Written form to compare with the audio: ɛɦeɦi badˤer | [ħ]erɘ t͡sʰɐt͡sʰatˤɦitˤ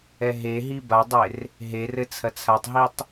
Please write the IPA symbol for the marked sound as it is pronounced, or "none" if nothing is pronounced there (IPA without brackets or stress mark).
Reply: ɦ